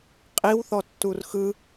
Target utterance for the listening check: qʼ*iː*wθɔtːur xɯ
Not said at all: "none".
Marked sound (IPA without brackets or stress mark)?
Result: i